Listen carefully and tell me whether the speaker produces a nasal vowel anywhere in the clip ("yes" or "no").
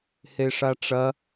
no